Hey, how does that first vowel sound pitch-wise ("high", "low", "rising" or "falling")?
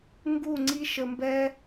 falling